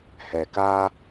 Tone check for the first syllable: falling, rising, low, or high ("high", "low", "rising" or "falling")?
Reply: low